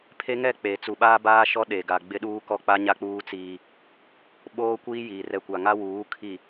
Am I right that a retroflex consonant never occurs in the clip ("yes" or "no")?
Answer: yes